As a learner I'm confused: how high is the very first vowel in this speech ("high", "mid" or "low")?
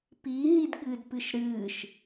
high